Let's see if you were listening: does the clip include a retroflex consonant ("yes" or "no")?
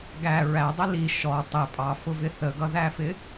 no